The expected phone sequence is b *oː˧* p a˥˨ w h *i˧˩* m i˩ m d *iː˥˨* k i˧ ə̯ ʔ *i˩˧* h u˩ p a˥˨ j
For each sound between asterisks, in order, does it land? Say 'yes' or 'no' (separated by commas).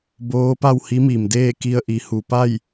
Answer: no, no, no, yes